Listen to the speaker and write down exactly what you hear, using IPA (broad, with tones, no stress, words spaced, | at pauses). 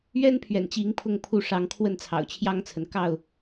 ɥɛ˦npʰɥɛ̰˨˩nt͡ɕi˨˦ŋ pʰʊ˥˨ŋpʰu˥˨ ʂɑ˨˦ŋ kʰwə˥˨nt͡sʰɑ̰˨˩ʊ̯t͡ɕʰjɑ˦ŋt͡sʰə˨n kɑ˥˨ʊ̯